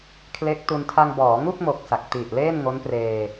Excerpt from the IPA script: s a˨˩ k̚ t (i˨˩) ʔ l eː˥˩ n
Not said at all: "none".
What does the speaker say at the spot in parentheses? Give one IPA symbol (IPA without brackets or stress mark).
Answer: i˨˩